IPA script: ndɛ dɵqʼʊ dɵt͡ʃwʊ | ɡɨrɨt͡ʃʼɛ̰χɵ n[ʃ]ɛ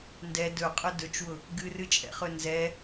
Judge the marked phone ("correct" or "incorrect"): incorrect